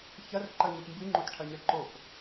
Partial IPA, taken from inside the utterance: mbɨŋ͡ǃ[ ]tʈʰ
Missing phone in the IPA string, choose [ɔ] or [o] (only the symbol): o